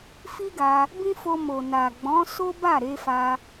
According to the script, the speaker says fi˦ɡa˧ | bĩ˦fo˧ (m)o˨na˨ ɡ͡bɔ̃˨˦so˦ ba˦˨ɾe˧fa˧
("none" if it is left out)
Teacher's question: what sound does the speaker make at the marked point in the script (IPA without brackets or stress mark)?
m